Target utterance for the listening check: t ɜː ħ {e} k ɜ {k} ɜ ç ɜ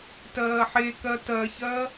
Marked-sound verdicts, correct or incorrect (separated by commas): correct, incorrect